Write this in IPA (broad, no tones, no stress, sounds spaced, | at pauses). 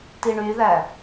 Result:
t i ɳ y ð æ